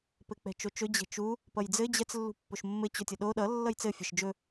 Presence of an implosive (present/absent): present